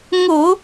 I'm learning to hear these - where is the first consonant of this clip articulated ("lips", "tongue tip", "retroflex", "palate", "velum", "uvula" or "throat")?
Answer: velum